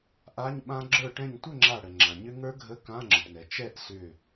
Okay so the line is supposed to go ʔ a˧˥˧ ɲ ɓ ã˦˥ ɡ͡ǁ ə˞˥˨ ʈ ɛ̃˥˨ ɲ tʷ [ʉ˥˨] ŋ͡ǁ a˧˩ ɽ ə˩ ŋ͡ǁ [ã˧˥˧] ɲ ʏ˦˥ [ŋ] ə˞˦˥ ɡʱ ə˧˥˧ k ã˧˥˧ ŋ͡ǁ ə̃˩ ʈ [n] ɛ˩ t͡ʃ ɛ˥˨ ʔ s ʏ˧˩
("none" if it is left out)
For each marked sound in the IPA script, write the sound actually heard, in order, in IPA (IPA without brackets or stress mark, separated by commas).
ə˥˨, ã˩, ŋ, n